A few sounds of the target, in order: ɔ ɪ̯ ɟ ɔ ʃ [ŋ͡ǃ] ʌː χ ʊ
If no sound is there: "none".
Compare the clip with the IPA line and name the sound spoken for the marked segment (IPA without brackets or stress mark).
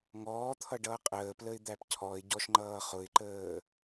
ŋ͡ǃ